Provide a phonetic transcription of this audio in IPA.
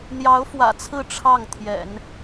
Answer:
n̪ j ɑ˧˥ ʊ̯ f w ä̰˨˩ t͡sʰ ɹ̩˥˧ ʈ͡ʂʰ ɑ˥˩ ŋ t̪ʰ j ɛ̰˨˩˦ n

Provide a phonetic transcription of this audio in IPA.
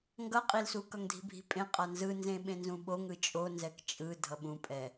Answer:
ŋ ɡ ʌ qʼ i l s u k ʌ ŋ dʱ i̤ bʱ i̤ pʼ ẽ qʼ a n z ɯ n z ẽ ɓ ẽ n z ũ ɓ o ŋ ɯ t͡ʃʼ o n z ɛ k t͡ʃʼ ɯ dʱ ʌ ɓ ũ pʼ ɛ

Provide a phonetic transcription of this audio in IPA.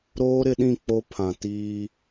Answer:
ɾ oː˦ ɾ ɪ˨˦ ɗ ĩ˦˨ k͡p o˦ pʰ ã˨ t iː˦

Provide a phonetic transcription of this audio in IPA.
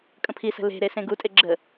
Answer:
kʼ ə̃ pʰ i s ə̤ l e̤ ɾ e s ẽ ɡ u tʼ e ɡ͡ǁ ə

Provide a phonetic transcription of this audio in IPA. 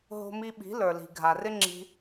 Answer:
ɦ o̤˧ m i˧ ɓ i̤˨˦ l ə˞˨ l i̤˨ ɡʱ a˨ r ɪ˦ ŋ͡ǁ i̤˧

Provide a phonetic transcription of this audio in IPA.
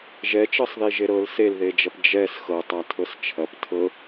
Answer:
ʒ ɛ t͡ʃ ɤ sˤ ð i ʒ e ɾ ɤ l s e l ð e d͡ʒ ɐ p d͡ʒ ɛ s x ɤ tˤ a tʰ ɤ s t͡ʃʰ ɐ p tʰ ɤ

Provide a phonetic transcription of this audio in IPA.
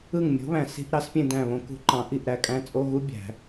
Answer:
ɯ˦˨ ŋ mʲ o̤˨˥ β æ̃˨ s i̤˧˥˧ ʔ ɾ ɑ˨˩˦ s pʲ ẽ˦˨ d æ̃˦˨ β õ˨˥ k ṳ˨˩˦ ǃ ɑ̃˨˩˦ ʔ i˦˨ ʔ ɾ æ˦˨ kʼ æ̃˦˥ t͡sʼ o˧˥˧ ɣ u˦˥ bʲ æ̤˨˩˦

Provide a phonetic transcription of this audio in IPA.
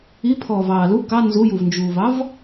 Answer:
i pʰ ɔː v ɑː l u k ɑ n z u j u v n d͡ʒ uː v ɑ v

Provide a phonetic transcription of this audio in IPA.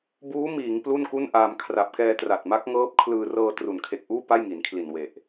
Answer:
b uː˦˥ m iː˩˦ ŋ p l u˥˩ n k u˥˩ n ʔ aː˧ m kʰ r a˨˩ p̚ k ɛː˧ t r a˨˩ t̚ m a˦˥ k̚ ŋ ɤː˦˥ p̚ kʰ l ɯː˧ r ɤː˧ t r u˩˦ n kʰ e˨˩ k̚ ʔ uː˥˩ p a˥˩ j ŋ i˩˦ n kʰ l i˨˩ n w e˨˩ ʔ

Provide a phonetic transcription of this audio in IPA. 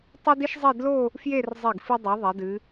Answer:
tˤ ɨ˥ d i˥ ʃ zˤ i˥˧ d l o˥˧ | f j e˥˧ r zˤ i˧˩ ɡ f ɨ˧ dˤ ɛ˩˧ ðˤ ɛ˩˧ d ɨ˩˧

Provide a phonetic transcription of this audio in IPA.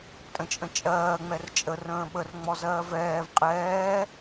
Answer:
tʼ ə̃ t͡ʃʼ ə̃ t͡ʃʼ ɜː ŋ͡m ɛ r t͡ʃʼ ə r ə̃ː ɓ ə r ŋ͡m ɔ z ɜː v ɛː v qʼ ɛː

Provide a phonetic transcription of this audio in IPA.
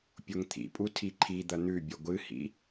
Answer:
pʲ o ŋ t̪ʰ ḭ pʼ u tʰ i ǃʰ i d̪ ɐ n̪ ʉ bʲ ɐ ɡʷ ɨ h ḭ

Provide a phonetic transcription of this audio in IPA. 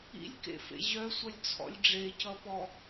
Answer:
ḭ lʲ k ḛ f ḛ ʑ œ sʷ ʌ lʲ t͡sʰ ɔ̰ lʲ ɖ͡ʐ e c ʌ p ɔ

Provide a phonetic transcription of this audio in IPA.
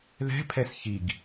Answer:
ð ɛ̤ pʰ ɛ s ç i ɡ

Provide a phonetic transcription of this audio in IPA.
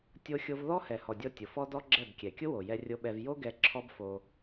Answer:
tʲ o˦ xʲ o˦ v ð ɔ˦ h ɛ˨ h ɔ˨ dʲ ɔ˧ tʲ ʊ˨ f ɔ˦ d ɔ˦ ɡ͡ǁ ɛ˦˨ b kʲ ɛ˨ kʲ ʊ˦ w o˨ j ɛ˧ rʲ o˧ ɓ ɛ˧ v j o˦ ɡ ɛ˧ ǁʰ ɔ˦ b f o˧

